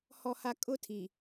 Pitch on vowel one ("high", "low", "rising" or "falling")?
low